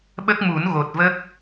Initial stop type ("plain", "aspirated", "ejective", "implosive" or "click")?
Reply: implosive